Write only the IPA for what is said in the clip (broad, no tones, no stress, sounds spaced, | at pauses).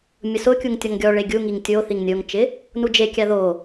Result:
mʲ ʊ s ʊ kʲ u ŋ tʲ ɔ ŋ ɡʲ ɔ ɭ e ɡʲ u ŋ i ŋ tʲ o θ i ŋ nʲ o ŋ t͡ʃ ɪ | n u d͡ʒ e kʲ a ð o